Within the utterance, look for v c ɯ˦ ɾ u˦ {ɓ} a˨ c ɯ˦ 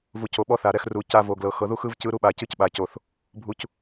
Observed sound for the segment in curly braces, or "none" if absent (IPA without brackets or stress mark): ɓ